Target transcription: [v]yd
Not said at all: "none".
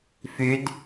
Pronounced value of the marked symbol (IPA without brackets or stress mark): f